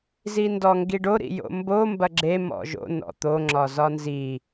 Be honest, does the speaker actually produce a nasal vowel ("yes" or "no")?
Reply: no